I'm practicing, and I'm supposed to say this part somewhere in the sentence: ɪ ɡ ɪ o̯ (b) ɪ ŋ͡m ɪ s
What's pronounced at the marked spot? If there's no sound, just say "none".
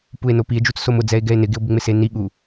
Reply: b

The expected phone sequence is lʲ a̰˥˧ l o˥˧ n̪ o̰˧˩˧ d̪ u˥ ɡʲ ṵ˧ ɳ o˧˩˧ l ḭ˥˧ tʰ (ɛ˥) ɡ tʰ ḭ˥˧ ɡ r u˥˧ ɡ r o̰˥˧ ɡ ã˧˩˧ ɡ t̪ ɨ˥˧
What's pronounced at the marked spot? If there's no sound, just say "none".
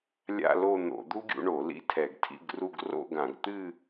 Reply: ɛ˧˩˧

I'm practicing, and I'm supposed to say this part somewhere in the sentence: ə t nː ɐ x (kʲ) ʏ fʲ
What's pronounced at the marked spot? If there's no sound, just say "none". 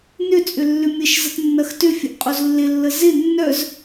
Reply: t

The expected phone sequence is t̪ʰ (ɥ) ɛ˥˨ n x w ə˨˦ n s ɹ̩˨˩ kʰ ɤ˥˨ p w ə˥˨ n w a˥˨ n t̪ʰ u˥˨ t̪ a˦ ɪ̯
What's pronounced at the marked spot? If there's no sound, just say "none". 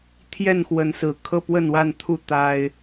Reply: j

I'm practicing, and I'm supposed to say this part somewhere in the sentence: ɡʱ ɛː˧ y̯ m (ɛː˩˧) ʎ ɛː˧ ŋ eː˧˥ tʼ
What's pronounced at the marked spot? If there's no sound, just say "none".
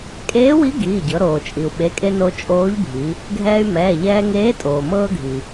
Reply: ɛː˩˧˩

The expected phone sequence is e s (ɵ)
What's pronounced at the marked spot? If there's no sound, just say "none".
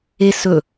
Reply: ɵ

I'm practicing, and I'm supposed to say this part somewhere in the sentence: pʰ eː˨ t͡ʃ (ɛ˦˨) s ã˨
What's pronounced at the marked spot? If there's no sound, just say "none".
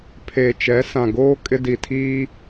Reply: ɛ˨˦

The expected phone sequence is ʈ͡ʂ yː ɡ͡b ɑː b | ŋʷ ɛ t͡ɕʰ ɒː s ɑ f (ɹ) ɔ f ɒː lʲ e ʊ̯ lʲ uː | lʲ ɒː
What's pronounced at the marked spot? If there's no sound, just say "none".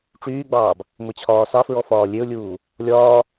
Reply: ɹ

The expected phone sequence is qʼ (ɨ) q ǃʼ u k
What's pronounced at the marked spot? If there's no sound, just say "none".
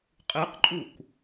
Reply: ɨ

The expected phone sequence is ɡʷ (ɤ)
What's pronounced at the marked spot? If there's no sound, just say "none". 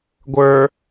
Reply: ə˞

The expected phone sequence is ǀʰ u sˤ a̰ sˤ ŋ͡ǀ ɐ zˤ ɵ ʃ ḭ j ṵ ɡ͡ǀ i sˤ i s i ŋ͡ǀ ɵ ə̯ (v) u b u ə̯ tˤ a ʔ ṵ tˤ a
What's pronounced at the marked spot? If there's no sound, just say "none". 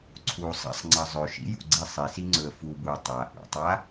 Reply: f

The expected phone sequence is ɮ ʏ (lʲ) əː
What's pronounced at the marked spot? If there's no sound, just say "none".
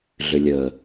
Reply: lʲ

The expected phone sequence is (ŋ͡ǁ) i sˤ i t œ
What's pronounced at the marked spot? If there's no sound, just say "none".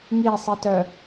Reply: ŋ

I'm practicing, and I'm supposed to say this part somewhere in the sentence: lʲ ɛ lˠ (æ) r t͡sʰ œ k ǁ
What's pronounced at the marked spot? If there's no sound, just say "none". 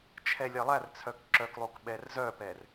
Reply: æ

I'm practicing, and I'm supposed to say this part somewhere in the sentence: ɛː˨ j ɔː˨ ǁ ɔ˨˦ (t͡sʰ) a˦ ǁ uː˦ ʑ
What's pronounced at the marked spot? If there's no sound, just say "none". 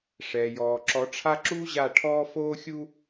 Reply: ʈ͡ʂʰ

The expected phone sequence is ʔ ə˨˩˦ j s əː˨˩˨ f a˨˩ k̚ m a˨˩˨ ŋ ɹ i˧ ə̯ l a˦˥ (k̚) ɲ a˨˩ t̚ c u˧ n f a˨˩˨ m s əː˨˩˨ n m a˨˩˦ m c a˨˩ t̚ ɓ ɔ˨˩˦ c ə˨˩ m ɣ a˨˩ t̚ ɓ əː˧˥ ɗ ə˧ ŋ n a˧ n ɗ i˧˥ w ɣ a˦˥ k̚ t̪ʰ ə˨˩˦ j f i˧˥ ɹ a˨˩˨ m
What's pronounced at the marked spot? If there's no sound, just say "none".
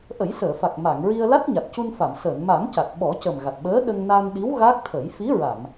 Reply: t̚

